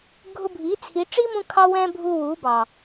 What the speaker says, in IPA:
ɡʱʊ˧bʱi˨˦t͡sʰi˨˦ ʈ͡ʂi˦mũ˧kʰɑ˧ wɛ̃˦bʱu˧wu˨˦bɑ˨

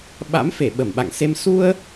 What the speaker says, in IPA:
ɓa̰˧˥mfe˧˩ ɓə˧˩mɓa̰˧˨ŋse˧m su˧ə̯

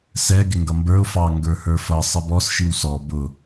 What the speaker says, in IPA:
sɛ ɡɪŋɡʌmbə˞ʊ̯ fɑ ŋɡə˞hə˞fʌ sˤɪbɔs ʃiwsɔ bʊ

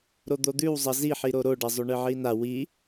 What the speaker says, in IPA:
ɾod̪od̪ʉwzˤɐ ziħiɾo ɾoɖɐzˤʉ ɳɨʕina wi

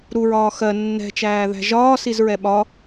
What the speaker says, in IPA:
ɾuɹɒː xɜ nːɛ̤t͡ʃæːðæ̤ ʒɒːsizɹɛ ɓɒ

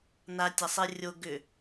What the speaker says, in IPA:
natʲasˤe rʲo ɡʏ

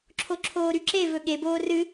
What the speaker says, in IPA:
ǁʰoǁʰoːɾyǁe vɵɠe boːrɨ

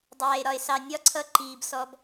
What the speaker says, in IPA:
dˤæː˨e̯ɾɒ˨e̯sɑ˨ nʲɒ˦ǀʰʌ˧ ǃiː˨bsɔ˧b

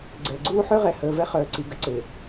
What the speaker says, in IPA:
ɡ͡ǀɛ˨ɡ͡ǀuː˦ ħø˦ʁɛ˨həː˨ vɛ˦χœː˨ǀi˨ ɡə˨ǀe˨

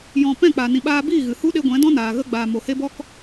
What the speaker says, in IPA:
jɔ̃˧ pɛ̃˦˨k͡pa˨nĩ˨ɓaː˧ biː˦˨ɣɨ˨hu˦ɗe˧ ɡʷɛ̃˨˦dɔ̃˦naː˨ɣə˧ ɡ͡baː˨ mo˨ he˦bɔ˦k

